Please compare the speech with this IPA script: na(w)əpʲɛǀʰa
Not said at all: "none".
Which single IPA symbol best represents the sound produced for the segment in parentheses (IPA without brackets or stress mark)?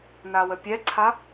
w